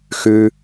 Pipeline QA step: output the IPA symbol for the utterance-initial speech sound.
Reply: x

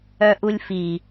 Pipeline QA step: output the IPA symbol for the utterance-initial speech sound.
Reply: œ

